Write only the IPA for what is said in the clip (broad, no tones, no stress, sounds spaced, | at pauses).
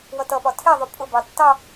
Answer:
w ʌ t ʌ p ɒ tʰ ɛ ðˤ u pʼ ʊ b ɑ tː ɑ